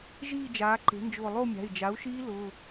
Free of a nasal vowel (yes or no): yes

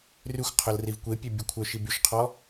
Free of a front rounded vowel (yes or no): no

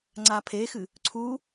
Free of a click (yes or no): no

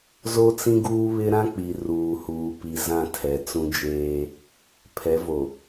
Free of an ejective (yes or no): yes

